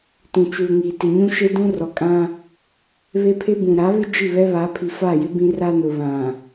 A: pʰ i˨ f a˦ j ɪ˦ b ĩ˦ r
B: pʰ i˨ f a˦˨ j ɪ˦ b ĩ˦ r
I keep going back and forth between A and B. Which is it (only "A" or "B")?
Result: B